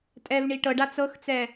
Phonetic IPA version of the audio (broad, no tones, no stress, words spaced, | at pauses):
tʼɛvɳi ʈɤɖa t͡sɤxt͡sɛ